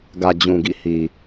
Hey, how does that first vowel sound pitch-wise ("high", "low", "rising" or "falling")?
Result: low